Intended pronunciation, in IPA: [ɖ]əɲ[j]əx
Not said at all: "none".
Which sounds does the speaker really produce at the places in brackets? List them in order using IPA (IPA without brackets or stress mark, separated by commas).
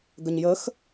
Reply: ɡ, j